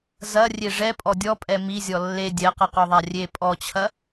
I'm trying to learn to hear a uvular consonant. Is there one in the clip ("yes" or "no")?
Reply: yes